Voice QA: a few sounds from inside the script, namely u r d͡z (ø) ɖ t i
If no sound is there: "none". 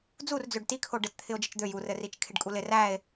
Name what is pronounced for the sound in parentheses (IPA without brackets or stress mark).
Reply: ø